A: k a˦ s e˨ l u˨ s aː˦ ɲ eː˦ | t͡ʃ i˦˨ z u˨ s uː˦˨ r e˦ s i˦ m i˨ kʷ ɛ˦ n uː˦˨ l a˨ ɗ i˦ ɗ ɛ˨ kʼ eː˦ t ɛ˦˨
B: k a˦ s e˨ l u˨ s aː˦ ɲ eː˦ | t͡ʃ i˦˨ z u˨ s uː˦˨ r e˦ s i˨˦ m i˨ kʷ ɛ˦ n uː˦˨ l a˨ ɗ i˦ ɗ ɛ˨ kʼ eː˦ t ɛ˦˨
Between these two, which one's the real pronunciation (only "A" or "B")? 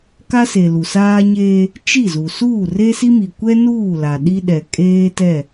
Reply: A